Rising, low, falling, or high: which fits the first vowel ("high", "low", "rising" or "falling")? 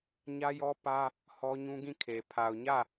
high